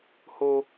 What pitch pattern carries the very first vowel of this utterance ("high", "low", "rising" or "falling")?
high